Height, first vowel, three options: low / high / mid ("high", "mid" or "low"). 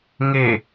mid